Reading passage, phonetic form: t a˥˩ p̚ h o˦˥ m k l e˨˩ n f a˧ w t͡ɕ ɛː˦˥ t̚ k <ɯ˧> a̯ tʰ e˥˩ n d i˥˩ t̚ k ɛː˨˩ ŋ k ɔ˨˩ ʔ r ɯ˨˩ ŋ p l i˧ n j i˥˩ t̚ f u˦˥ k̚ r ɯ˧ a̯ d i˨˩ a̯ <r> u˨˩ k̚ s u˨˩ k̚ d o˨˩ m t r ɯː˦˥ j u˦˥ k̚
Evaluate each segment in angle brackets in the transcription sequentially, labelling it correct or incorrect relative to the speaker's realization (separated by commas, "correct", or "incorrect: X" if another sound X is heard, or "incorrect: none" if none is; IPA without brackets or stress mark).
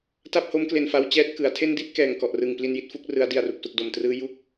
incorrect: ɯ˩˦, correct